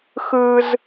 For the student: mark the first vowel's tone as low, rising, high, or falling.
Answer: high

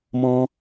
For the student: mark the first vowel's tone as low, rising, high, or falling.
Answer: high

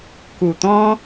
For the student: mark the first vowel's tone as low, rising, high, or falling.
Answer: low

